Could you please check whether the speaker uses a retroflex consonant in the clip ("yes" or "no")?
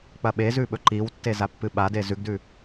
no